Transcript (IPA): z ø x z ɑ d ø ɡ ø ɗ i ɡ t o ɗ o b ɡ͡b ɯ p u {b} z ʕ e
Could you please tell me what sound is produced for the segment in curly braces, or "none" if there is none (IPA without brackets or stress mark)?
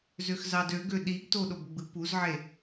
none